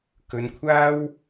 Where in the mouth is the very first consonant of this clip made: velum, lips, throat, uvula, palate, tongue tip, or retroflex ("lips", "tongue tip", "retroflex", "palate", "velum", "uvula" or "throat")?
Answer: velum